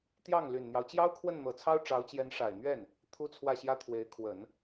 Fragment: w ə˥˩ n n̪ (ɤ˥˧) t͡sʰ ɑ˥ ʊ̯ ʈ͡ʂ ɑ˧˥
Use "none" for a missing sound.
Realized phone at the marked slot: ɤ˨˩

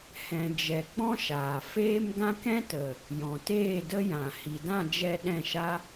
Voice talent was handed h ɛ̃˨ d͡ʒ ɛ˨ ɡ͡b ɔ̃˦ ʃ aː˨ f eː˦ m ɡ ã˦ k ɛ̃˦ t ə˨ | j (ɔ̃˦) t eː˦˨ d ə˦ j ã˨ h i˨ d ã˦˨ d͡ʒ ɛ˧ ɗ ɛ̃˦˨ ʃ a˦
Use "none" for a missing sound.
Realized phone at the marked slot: ɔ̃˨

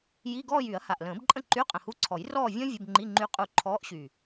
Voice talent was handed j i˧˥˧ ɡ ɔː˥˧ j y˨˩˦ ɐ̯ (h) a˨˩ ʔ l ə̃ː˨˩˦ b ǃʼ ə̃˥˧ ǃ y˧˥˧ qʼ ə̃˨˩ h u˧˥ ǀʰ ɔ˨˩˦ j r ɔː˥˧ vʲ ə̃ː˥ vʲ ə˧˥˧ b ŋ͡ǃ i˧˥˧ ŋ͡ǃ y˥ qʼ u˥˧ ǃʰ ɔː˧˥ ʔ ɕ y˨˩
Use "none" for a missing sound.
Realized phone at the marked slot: h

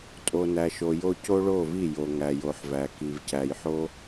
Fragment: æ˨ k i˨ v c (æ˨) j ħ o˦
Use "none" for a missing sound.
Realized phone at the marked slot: æ˨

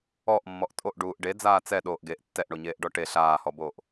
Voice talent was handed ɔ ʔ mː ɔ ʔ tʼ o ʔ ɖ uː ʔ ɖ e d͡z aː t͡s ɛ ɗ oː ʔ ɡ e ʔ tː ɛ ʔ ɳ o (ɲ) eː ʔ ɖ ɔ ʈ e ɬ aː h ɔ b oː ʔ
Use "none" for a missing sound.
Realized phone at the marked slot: ɲ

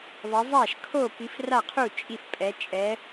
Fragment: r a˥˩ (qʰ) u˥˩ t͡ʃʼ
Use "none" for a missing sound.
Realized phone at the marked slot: qʰ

